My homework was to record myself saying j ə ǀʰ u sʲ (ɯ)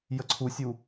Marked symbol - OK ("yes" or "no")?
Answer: no